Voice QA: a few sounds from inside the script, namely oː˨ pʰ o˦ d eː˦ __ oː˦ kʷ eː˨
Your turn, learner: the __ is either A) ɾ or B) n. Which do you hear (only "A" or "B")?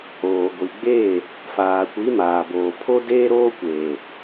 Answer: A